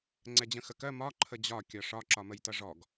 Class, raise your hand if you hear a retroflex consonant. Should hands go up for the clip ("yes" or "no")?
yes